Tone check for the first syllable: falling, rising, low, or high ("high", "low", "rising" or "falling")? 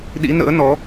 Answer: rising